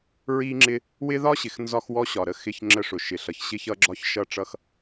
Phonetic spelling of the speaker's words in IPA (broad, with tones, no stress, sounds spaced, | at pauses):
ɹ i˦ ŋ͡ǁ ɪ˦ | w ɪ˦ ð ɒ˦ ɕ ɪ˨ x n z ɒ˦ x w ɔ˦ ɕ ɒ˨ ɾ ə˦ x ɪ˦ ç ŋ͡ǁ ə˦ ʂ ʊ˨ ʃ ɪ˨ ɬ ʌ˨ ç ɕ ɪ˦ ç ʌ˦ ɡ͡ǁ ɒ˦ ç ʃ ʌ˦˨ ʈ͡ʂ ʌ˦ x